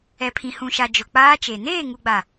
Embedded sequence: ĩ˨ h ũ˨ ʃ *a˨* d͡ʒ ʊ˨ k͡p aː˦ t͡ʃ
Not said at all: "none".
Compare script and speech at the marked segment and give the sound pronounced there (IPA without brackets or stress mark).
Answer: a˨